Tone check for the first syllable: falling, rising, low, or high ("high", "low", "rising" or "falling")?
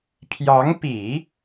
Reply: rising